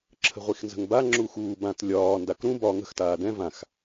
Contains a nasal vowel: yes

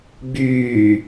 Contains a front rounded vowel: yes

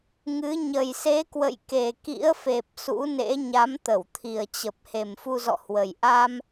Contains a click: no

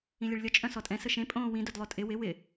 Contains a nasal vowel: yes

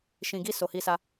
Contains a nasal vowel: yes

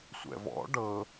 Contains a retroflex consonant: yes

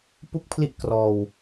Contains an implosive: no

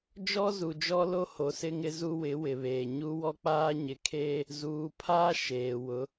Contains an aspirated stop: yes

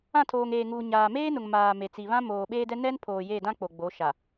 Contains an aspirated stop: yes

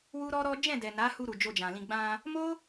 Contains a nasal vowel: yes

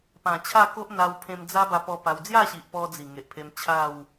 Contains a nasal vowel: yes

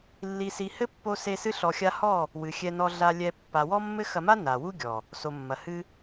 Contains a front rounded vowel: no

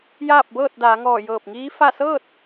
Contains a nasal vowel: no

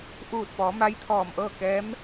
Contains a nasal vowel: no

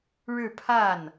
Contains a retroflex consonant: yes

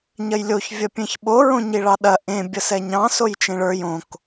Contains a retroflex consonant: yes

